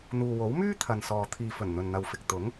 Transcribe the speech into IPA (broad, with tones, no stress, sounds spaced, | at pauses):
n̪ uː˨ w o˨˥ w m yː˥ t̪ʰ ɐ˨ n s ɔː˨ t̪ʰ iː˨ f ɵ˨˩ n n̪ ɵ˨ n n̪ ɐ˨ w f ɪ˨ k̚ t̪ ʊ˨˥ ŋ